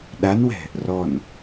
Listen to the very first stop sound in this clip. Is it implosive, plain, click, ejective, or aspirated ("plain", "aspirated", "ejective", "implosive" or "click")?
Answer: implosive